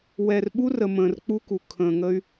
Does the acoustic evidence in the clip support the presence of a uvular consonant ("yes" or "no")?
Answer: no